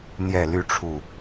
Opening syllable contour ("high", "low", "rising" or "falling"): low